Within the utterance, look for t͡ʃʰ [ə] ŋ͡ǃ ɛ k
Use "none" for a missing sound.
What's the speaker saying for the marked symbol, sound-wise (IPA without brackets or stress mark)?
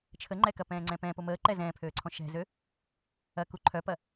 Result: ə